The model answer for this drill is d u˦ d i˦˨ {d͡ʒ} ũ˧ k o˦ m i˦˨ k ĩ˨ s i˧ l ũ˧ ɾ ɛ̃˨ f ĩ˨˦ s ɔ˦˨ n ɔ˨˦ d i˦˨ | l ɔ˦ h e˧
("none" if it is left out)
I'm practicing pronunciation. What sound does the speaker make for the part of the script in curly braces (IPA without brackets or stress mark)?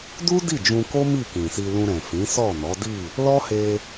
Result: d͡ʒ